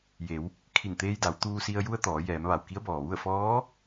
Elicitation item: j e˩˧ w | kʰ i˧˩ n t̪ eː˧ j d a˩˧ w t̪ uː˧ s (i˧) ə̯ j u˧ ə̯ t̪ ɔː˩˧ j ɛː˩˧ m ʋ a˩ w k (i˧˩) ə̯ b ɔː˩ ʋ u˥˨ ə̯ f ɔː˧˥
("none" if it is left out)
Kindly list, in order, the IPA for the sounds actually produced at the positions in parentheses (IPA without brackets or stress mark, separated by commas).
i˧, i˧˥